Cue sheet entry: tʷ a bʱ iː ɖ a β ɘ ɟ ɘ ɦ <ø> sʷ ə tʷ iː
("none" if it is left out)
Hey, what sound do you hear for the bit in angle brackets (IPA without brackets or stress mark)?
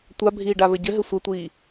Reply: ɘ